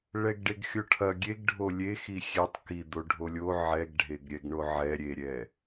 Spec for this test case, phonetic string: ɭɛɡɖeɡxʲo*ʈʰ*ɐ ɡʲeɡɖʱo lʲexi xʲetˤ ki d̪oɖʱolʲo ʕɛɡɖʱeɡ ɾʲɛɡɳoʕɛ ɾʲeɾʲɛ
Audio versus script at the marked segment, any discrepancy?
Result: no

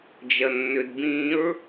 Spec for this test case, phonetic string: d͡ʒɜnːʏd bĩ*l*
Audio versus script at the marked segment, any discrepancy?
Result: yes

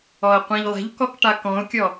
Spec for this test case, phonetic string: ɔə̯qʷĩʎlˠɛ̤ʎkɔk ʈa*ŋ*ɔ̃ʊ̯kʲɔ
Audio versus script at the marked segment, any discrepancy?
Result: yes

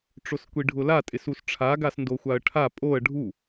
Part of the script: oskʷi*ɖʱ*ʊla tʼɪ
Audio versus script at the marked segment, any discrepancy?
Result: no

